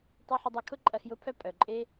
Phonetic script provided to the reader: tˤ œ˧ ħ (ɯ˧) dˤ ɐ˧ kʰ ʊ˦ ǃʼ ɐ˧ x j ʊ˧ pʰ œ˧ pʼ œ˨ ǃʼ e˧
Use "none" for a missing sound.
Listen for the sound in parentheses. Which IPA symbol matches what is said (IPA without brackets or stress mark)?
ʊ˧